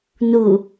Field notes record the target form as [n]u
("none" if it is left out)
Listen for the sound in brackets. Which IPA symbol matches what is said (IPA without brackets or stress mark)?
n